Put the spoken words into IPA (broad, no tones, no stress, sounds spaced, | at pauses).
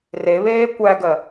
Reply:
r e β eː kʷ æ ɡ ɜ